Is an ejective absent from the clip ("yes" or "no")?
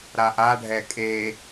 no